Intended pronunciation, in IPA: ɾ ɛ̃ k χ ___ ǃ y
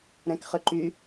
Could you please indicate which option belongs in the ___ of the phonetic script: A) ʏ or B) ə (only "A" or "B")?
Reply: A